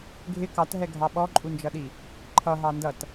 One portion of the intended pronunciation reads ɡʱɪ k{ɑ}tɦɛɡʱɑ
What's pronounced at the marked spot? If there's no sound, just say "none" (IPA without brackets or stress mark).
ɑ